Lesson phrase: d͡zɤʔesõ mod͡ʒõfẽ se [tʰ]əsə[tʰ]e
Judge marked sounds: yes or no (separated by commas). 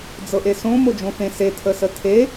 yes, yes